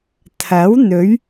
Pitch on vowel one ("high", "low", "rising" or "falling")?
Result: rising